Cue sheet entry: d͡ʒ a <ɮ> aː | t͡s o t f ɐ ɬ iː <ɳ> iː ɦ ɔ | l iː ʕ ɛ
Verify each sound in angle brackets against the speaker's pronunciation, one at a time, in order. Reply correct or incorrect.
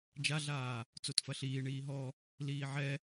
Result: correct, correct

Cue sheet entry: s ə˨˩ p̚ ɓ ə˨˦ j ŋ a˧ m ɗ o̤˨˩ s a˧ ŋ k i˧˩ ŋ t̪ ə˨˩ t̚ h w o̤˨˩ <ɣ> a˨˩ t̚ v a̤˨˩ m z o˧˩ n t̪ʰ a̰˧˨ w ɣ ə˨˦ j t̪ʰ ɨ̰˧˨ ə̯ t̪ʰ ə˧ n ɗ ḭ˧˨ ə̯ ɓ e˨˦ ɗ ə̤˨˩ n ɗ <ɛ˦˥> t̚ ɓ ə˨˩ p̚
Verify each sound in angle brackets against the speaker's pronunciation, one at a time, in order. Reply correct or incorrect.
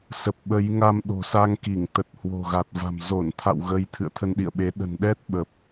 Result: correct, correct

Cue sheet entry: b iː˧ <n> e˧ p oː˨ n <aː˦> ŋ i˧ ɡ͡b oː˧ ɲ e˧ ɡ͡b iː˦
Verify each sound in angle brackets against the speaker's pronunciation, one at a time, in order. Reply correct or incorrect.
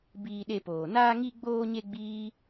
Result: incorrect: ɗ, incorrect: aː˧

